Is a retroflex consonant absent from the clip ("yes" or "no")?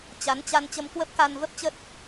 yes